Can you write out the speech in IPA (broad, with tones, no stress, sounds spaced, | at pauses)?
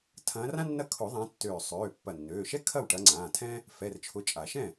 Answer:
tʰ ɐ̃ː˨˦ r ã˥ nː ɐ˥˩ kʰ ʊ˨˩˦ ðˤ ã˨˦ tː øː˧˩ sˤ øː˩˧˩ pː ɐ˧˩ nː øː˩˧˩ ʃ ɛ˥ kʰ ɐ˥˩ w ʈ ɐ˨˦ ŋ͡ǀ ãː˩˧˩ tʰ ɛ̃˥ | f ɛ˩˧˩ r t͡ʃʰ ʊ˨˦ t͡ʃʼ a˨˩˦ ʃ ɛ̃˥˩